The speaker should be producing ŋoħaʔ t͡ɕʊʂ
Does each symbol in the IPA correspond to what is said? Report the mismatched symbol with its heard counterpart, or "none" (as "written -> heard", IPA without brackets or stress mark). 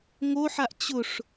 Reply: none